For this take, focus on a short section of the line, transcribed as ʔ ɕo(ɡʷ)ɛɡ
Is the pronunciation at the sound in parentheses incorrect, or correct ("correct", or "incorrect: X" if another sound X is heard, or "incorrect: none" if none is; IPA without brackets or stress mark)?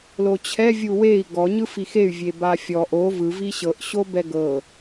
incorrect: b